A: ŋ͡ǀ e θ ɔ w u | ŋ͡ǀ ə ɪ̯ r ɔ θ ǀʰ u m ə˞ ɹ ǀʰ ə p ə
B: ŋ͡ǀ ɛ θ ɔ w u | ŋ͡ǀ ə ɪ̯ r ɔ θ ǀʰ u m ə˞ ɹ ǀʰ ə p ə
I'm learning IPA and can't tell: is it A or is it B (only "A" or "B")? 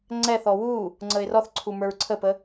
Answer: B